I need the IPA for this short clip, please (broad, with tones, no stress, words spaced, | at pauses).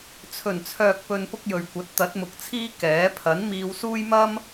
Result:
t͡sʰɵ˨˩nt͡sʰœː˨k̚pɵ˨n pʊ˥k̚jɵ˨ɥkʷɐ˨˥t̚ t̪ɐ˨˥t̚mʊ˨k̚t͡sʰiː˥ kɛː˨˥ pʰɐ˨˥nmiː˧wsuː˥j mɐ˥m